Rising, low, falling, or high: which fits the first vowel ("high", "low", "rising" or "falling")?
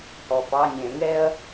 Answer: low